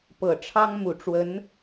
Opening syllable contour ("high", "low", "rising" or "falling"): low